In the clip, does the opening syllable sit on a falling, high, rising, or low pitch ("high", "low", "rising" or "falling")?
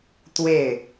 falling